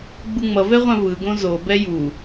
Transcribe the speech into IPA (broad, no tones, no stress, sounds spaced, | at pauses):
ɡ͡b u ŋ͡m ʌ v ɛ ʁʷ ã v ɯ ɡ õ z o b ɛ j u